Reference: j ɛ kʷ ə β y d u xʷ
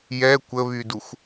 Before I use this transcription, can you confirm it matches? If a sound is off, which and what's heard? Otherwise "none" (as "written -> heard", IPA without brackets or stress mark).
none